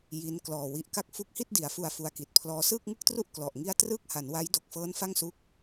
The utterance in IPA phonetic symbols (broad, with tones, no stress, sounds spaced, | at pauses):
j i˦˥ n k l ɔː˨˩ w i˨˩ ʔ k a˥˩ k̚ f u˦˥ k̚ h i˥˩ t̚ d i˩˦ a̯ f u˨˩ a̯ f u˧ a̯ k i˨˩ t̚ pʰ l ɔː˧ s ɯː˥˩ k̚ ŋ ɯ˥˩ k̚ t r u˥˩ ʔ k l ɔ˨˩ ʔ ŋ i˥˩ a̯ t r ɯː˥˩ k̚ h a˩˦ n w a˦˥ j d o˨˩ k̚ f ɤː˦˥ n f a˥˩ ŋ s u˦˥ k̚